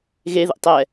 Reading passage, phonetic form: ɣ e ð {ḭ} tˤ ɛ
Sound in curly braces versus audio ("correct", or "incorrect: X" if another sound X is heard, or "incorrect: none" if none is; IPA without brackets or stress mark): correct